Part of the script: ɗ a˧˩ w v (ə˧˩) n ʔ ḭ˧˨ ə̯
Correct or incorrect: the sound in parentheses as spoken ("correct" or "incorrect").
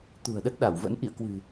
incorrect